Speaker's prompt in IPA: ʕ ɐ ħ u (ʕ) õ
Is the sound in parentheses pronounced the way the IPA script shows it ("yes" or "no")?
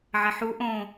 no